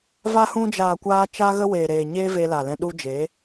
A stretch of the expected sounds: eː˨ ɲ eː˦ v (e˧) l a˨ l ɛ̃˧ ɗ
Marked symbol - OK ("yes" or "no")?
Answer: yes